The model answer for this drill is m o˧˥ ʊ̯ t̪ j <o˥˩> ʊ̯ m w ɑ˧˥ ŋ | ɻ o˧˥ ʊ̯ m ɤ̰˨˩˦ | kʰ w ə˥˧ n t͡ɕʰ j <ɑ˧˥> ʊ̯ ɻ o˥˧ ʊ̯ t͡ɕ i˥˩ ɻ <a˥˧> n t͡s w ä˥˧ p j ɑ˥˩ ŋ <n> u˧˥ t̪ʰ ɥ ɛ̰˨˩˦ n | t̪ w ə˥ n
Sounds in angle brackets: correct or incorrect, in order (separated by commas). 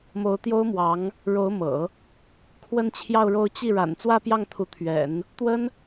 incorrect, incorrect, incorrect, incorrect